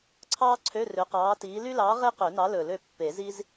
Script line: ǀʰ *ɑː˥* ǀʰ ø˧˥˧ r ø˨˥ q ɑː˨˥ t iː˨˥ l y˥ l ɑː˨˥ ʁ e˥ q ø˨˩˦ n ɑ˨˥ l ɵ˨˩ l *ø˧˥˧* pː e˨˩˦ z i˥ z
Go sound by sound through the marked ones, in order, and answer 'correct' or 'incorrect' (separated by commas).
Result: correct, incorrect